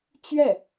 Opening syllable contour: falling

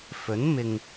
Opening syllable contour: rising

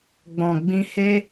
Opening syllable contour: low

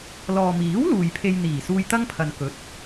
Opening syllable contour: low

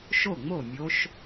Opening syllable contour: falling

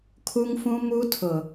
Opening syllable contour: high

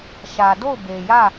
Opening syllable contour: low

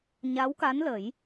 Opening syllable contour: rising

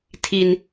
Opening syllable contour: high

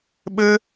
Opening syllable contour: high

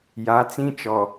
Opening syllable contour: rising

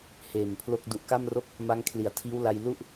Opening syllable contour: low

